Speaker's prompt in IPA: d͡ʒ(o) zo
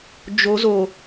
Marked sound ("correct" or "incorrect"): correct